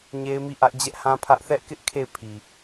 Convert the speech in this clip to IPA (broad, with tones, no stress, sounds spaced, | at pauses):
ɲ e˦ ɪ̯ m i˦˨ ʔ ä˦ ʔ d͡ʑ ɛ˦ ʔ h ã˦ pʰ ä˦ ʔ θ ɛ˦ ʔ k ɪ˦ ʔ kʰ e˦˨ ɪ̯ pʰ i˨